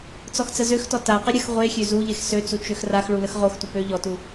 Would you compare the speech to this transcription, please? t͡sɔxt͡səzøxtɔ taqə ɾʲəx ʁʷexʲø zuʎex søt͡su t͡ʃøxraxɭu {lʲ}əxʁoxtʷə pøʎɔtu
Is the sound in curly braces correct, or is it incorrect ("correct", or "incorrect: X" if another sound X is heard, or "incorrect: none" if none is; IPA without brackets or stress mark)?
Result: incorrect: l